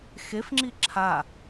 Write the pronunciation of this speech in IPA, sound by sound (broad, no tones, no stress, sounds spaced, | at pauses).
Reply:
x e f ŋ͡ǁ i ǁʰ a